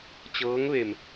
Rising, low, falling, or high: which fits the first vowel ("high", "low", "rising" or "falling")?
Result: rising